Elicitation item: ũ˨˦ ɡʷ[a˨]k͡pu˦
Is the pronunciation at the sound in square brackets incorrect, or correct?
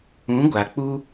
correct